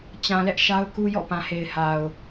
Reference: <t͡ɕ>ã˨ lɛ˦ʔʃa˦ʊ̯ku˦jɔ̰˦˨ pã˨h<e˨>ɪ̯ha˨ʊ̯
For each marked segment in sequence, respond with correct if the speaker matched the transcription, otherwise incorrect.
correct, correct

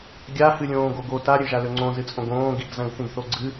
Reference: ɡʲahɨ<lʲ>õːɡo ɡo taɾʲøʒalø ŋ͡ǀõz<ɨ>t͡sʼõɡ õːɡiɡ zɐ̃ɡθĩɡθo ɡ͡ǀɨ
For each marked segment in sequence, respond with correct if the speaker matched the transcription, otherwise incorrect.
correct, correct

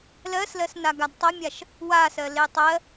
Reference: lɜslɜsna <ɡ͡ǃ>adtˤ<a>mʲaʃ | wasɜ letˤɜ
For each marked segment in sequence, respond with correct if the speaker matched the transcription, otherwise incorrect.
incorrect, incorrect

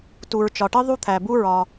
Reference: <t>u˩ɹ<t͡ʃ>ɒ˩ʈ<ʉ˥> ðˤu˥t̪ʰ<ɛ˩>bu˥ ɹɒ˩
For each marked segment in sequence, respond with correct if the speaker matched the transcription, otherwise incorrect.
correct, correct, incorrect, incorrect

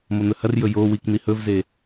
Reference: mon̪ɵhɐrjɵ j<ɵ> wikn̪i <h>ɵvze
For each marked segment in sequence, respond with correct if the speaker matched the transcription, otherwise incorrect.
incorrect, correct

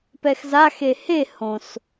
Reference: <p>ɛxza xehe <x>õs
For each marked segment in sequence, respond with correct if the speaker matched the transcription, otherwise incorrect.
correct, incorrect

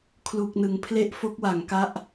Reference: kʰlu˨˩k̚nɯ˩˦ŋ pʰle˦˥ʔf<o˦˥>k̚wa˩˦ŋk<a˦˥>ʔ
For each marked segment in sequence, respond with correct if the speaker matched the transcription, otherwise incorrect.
correct, correct

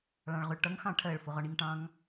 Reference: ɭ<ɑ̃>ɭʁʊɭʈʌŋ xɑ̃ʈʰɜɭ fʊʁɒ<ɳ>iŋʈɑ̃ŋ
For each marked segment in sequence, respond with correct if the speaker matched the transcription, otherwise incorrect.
correct, correct

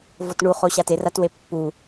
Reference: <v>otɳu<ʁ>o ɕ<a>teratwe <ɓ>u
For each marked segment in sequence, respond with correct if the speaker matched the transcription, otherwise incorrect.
correct, incorrect, correct, incorrect

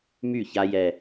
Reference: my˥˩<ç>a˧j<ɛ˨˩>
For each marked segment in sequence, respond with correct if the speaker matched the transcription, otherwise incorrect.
correct, correct

